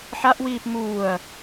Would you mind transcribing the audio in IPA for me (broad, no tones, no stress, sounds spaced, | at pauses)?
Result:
ħ a ʔ w iː p m uː ɐ̯